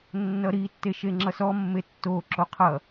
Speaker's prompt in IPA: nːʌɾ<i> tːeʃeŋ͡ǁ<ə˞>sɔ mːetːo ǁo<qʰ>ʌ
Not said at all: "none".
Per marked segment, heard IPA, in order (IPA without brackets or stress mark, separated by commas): i, ʌ, qʰ